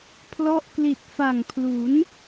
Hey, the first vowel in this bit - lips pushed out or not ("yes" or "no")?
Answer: yes